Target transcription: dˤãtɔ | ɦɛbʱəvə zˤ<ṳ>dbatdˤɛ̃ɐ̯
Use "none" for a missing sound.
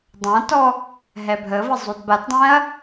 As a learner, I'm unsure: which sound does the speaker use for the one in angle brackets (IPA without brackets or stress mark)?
u